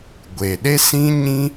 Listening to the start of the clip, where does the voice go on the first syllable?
low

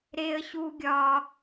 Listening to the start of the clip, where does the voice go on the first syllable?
high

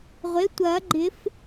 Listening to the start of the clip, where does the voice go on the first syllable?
rising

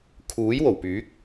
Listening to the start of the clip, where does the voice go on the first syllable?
rising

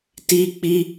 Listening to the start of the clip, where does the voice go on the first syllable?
high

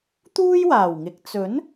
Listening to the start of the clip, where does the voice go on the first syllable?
high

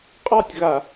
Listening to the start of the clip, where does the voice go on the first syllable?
falling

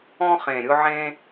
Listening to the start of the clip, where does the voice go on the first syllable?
high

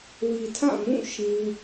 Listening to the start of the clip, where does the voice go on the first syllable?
low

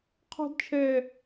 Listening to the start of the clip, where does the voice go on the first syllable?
high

